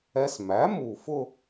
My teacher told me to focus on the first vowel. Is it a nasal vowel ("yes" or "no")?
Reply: no